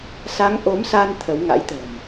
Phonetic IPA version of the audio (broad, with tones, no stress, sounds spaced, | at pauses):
s a˨˦ ŋ ʔ o˨˦ m s a˧ n t̪ʰ ə˨˦ w ŋ a̰˧˥ j t̪ ə̤˨˩ m